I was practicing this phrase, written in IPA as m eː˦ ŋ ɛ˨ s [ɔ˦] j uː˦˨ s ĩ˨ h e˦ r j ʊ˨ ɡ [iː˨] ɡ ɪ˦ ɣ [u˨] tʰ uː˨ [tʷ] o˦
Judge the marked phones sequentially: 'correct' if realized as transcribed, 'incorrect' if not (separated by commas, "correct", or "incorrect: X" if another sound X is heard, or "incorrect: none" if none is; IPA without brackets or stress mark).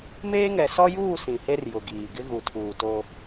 correct, correct, correct, incorrect: t